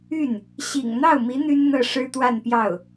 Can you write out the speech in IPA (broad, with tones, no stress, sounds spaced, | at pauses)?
y˥˩ n | ɕ ḭ˨˩ ŋ n̪ ɑ˥˩ ʊ̯ m i˧˥ n̪ y˥ n n̪ ɤ˥˩ ʂ ɻ̩˥ t̪ w a˥˧ n p j ɑ˥˩ ʊ̯